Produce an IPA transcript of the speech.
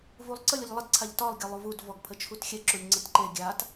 v u lˠ ǀ ə lʲ ə ʎ lˠ ə d ǀʰ a ʎ t ɒ lˠ ɡʲ ɒ lˠ u v u d v ɔ ɡ pʰ ə t͡ʃʰ u t xʲ ɛ ǁ u lʲ ŋ͡ǀ ə t ǃ e ɡʲ a t

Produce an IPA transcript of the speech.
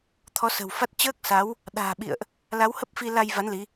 t̪ʰ ɔ˨˦ s ə̤˨˩ w f a˦˥ t̚ t͡ɕ əː˦˥ k̚ s a˨˦ w | ɗ a̤ː˨˩ ɓ ḭ˧˨ ə̯ ʔ | l a˨˦ w h ə˦˥ p̚ f i˧ l a˧ j v a˨˦ n l i˨˦

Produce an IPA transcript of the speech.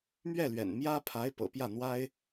m ɥ ɛ˥˩ l ɥ ɛ̰˨˩ n m j ä˥ pʰ a˧˥ ɪ̯ p ɤ̰˨˩ p j ä˥˩ n̪ w a˥ ɪ̯

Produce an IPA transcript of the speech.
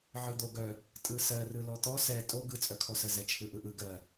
ʕ ɯ d̪ o ɡ œ | tʼ ɯ s ɜ r ɯ l ɔ t̪ ɔ s ɛ tʼ o ɡ ɯ t͡sʼ œ kʰ ɔ s ə z ɛ t͡ʃʰ ɯ ʔ ɯ ʔ ɯ ɡ ɜ

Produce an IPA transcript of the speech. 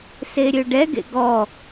s e ɾʲ ø ɖ ɛ ɡ ḛ ɡ ɔ

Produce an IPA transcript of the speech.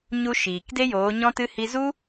ɲ u˧ ʃ iː˨ k d e˦ j oː˨˦ ɲ ɔ̃˦ t ɨ˦ h i˧ z u˦

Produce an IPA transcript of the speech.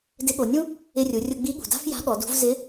d ɪ˧˥ ɠ o˩˧ nʲ ũ˥ | ɪ˧ rʲ u˩˧ rʲ ʊ˧ ɡ͡b i˧˥ ɠ ṳ˩ d a̤˥ f j a̤˧˥ ɠ ɔ˩˧ d ṳ˧˥ v z ɪ˧˥

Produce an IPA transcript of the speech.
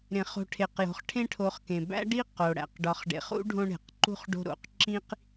ɾ ẽ˩ χ o̤˨ ʈʰ e˩ q j o̤˩ χ ʈʰ ẽ˦ ʈʰ o˨ χ k ẽ˩ b æ̰˥ ɖ i˥ q o˩ ɽ æ̰˩ q ɖ ɒ˨ χ ɖ ḛ˨ χ ṵ˥ ɖʱ õ˦ ɳ e̤˩ q ǃ ṳ˥ χ ɖ o̤˦ ɾ o̰˩ q ǁ ĩ˥ q

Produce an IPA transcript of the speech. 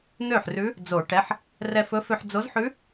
n̪ ø˥˩ ħ r ʉ˧˥ | d͡z o˨˩˦ ʈ ɛ˩˧˩ ħ | r ɛ˧ f ɵ˧˥ f ø˧ ħ d͡z o˧˥ z ħ ʉ˧˥

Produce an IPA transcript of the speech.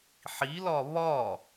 ħ i l ɒ β ɒ

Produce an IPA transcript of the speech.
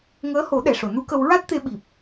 ŋ əː˧˥ h o˨˩˦ ɗ ɛ˨˩ ʂ o˨˩˨ n u˧˥ k ə˧ w ɹ a˦˥ t̚ t̪ e˧ ɓ i˨˩ p̚

